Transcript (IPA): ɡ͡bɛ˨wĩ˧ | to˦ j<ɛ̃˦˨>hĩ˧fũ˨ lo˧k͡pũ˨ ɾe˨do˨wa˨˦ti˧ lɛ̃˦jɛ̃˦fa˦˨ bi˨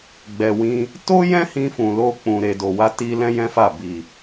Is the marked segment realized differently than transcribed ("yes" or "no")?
yes